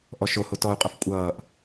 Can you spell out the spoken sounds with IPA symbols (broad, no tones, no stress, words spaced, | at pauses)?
ʔɔʃoho tɔu̯qʼʌf kʷʼʌːʔ